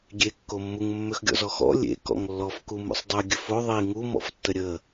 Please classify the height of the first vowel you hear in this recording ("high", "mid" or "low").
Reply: mid